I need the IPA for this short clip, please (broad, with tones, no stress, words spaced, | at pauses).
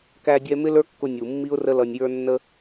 kæ˧dʲɛ˧ mɪ˦lə˞˦kːʊ˧ nʲu˨ mːi˦ʊ̯rə˦lʌ˧nʲjə˞˦ nːə˦